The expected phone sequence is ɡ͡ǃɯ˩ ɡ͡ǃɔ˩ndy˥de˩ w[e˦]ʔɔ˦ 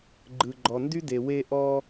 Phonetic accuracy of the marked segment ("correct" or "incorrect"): correct